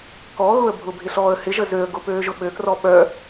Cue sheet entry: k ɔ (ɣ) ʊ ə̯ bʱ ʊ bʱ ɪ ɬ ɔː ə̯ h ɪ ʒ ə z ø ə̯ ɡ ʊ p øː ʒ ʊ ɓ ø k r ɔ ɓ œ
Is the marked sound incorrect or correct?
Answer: correct